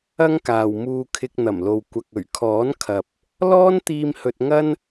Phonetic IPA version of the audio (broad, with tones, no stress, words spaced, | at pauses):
ɐ˥ŋkaː˨wmuː˧ kʰɪ˧k̚n̪ɐ˨˩mlo˨w kʷɐ˨k̚ɵ˨˩ɥkʰɔː˨˥nkʰɐ˨p̚ | lɔː˥nt̪iː˧m hɵ˧t̚ŋɐ˥n